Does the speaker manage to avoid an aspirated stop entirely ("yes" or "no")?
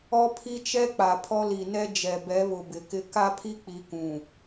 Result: no